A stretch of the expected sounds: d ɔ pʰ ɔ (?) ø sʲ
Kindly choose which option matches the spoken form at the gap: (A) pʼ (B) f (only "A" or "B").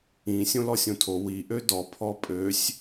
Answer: A